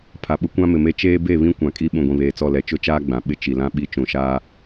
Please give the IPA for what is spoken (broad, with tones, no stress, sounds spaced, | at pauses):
pʰ a˨ ɓ ʊ˦ kʷ ã˦ m ɪ˨ m e˦ t͡ʃ eː˦ b e˦˨ β ĩ˦ kʷ ã˨ kʼ i˦ ɓ ũ˨ ɡʷ ĩ˨ β eː˨ t͡s ɔ˦˨ l ɛ˨ t͡ʃ ʊ˦ t͡ʃ aː˦ ɡ͡b ã˨ ɓ ɪ˦ t͡ʃ i˨ l ã˦ ɓ i˦˨ t͡ʃ ũ˨ ʃ aː˦